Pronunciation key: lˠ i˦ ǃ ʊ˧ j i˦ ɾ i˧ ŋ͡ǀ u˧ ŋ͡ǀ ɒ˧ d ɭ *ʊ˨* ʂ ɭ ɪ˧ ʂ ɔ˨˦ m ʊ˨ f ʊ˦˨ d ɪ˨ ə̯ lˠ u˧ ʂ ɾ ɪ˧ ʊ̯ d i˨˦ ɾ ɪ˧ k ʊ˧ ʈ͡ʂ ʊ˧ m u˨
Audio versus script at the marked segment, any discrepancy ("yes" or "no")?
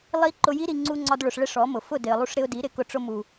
no